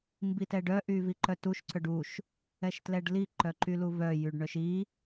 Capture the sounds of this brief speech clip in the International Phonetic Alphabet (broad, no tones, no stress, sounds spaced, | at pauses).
m b i t ɛ ɖ œ ʔ y v i ǃ œ t u ʃ ǀ œ ɖ u ʃ | ɛ ʃ t l ɛ ɖ l i ǃ œ ǃ y l u v œ j y ɖ ɳ œ ʃ i